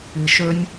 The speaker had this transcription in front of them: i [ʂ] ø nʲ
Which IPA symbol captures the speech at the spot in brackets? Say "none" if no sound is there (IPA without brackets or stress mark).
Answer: ʃ